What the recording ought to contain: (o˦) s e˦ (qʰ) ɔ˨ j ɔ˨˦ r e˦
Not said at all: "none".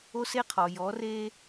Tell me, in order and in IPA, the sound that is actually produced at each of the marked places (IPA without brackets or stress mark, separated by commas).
o˦, qʰ